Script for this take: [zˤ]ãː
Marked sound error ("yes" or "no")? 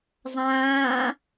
no